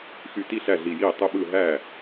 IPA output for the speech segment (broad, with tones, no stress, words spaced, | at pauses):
xy˧˩ti˥˩ɬæ˧˩ ɮi˧˩jiː˥˩ tˤɯ˧˩ɓɯ˧˩ ɦæː˥˩